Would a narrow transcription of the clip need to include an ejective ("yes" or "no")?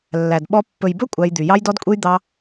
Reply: yes